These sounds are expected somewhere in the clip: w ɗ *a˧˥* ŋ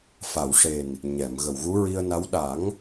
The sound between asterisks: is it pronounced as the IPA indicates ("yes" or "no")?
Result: no